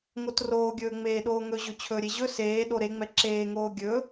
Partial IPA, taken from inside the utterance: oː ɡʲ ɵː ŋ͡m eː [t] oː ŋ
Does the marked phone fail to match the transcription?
yes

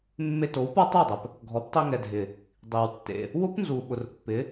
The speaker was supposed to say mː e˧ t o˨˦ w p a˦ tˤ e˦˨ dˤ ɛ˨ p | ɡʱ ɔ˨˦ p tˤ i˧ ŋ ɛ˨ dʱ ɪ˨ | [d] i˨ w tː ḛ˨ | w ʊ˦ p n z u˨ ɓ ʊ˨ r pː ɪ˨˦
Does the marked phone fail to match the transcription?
yes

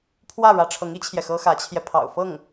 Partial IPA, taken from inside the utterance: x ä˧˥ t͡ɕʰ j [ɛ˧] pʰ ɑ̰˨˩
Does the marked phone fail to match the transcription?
no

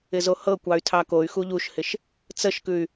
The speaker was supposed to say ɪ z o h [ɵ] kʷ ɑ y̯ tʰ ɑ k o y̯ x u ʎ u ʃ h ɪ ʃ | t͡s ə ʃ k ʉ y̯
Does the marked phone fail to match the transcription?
yes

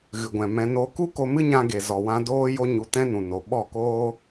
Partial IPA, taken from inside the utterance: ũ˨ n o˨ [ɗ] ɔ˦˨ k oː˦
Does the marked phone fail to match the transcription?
yes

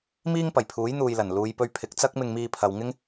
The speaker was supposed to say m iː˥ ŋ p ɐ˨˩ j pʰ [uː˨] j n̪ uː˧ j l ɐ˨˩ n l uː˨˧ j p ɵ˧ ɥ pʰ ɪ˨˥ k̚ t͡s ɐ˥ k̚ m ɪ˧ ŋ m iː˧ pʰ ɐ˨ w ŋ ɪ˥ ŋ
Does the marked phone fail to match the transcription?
yes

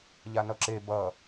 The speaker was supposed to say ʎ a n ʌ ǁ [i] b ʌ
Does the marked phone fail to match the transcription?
yes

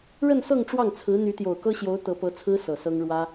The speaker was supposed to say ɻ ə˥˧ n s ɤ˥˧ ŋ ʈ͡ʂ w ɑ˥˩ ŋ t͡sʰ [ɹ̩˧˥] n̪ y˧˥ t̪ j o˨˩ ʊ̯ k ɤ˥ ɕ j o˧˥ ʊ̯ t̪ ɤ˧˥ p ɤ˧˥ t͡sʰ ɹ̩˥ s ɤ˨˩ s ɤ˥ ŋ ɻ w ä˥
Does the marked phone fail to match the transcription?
no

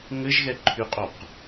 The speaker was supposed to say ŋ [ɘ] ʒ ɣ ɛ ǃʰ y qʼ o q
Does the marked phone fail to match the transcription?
no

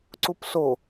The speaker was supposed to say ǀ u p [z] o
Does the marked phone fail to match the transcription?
yes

